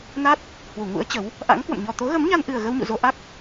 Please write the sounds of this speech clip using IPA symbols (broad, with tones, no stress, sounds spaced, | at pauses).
n a˦˥ t̚ | h w u˧˩ ŋ ṵ˧˥ ə̯ t͡ɕ ə˨˦ w | ʔ a̰˧˥ ŋ k w ə̰˧˨ m ɲ ɔ˨˩ t̪ o˨˦ ɣ ə˨˦ m ɲ a˧ n ʔ ɨ˨˩ ə̯ ɣ ə˧ w ɲ ṵ˧˨ z o˧ ʔ a˦˥ k̚